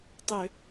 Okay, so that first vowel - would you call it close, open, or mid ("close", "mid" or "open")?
mid